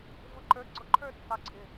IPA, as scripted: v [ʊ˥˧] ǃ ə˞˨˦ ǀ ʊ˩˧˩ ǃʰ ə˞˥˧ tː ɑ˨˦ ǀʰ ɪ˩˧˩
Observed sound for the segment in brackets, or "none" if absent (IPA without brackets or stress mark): ʊ˧˩